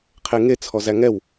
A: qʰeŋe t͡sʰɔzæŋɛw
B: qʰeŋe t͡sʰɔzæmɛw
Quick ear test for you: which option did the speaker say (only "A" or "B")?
A